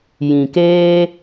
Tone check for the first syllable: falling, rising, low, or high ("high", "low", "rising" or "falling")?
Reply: low